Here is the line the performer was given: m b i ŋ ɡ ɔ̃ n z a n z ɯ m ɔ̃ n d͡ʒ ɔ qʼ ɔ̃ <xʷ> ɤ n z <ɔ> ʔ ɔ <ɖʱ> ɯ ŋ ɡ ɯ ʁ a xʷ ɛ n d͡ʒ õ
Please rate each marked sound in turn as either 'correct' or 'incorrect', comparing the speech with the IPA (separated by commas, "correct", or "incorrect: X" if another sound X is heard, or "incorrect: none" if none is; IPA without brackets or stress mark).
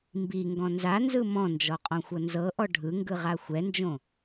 correct, incorrect: ɤ, correct